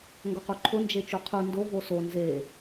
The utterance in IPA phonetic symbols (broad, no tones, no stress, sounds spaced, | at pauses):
ŋ ɡ o q u ǃʰ ʊ n d͡ʒ e t͡ʃ u qʰ u n d o v o s o n z e